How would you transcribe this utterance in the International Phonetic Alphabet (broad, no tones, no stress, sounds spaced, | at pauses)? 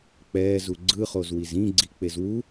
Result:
k͡p ɛː z u ɡ͡ǀ ɯ χ o z w i z ĩ ɡ͡ǀ i k͡p e z w u